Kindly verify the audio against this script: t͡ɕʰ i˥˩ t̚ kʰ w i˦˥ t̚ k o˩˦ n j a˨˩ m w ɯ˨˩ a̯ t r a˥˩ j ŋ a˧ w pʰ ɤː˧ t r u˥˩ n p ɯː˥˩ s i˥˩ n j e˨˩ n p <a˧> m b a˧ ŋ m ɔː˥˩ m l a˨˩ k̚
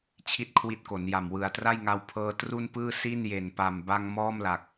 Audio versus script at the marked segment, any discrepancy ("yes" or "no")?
yes